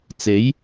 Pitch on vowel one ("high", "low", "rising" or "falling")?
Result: rising